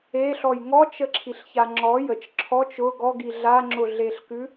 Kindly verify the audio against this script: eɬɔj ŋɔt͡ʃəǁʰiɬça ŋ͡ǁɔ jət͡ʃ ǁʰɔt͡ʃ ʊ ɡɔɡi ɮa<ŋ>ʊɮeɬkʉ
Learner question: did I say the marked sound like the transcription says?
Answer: no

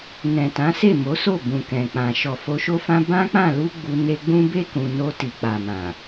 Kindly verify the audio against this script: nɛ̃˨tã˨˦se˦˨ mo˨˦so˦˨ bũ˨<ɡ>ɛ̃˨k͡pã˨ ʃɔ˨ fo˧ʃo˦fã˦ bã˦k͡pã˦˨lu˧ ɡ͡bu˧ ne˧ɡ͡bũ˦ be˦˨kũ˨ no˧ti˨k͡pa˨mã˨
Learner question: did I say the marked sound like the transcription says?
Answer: no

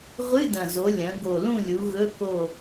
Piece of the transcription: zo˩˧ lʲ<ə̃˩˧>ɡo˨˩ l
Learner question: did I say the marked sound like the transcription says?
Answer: no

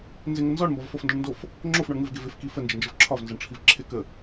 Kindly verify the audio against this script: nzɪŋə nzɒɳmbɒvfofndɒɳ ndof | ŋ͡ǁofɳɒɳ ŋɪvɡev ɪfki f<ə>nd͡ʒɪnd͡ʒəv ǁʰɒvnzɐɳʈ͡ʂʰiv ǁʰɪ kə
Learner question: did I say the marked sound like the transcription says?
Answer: yes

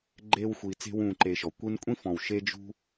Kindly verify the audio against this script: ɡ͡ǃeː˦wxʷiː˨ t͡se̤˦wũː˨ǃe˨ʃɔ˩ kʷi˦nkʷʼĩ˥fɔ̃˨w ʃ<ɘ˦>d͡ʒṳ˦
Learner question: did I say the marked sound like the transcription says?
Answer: no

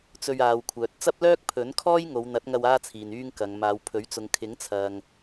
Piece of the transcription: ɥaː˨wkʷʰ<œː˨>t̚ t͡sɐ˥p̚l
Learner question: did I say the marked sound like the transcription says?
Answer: yes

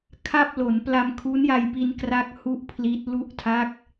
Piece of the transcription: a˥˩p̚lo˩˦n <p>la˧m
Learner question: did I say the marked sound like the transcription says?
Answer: yes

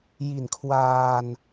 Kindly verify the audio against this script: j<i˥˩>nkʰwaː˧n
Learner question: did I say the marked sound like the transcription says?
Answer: no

